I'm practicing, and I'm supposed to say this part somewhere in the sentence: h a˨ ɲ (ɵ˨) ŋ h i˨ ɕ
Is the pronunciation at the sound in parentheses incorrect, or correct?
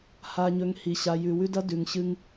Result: correct